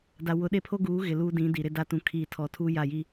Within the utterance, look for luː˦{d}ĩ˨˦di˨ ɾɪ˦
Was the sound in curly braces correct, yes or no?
yes